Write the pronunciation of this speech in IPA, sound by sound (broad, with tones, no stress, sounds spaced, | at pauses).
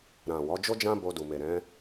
ɾ ã˨ w ɔ˨˦ d͡ʒ o˦ d͡ʒ ã˦ b o˧ d u˨ m e˨ ɾ ɛ̃˨˦